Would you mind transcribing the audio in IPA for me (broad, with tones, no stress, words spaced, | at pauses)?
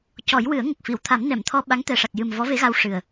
cɔ˨˩˦j wɨ˨˩˦ə̯ŋə˨˩k̚fi˨˩˨w t̪ʰa˨˩˦mnɛ˨˩˨mt̪ʰɔ˧ ɓa˧˥ŋt̪ɛ˨˩ʂa˨˩k̚jɨ˨˩m vɔ˧˥ve˧˥ɣa˧wʂɨ˨˩ə̯